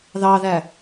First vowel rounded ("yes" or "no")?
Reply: no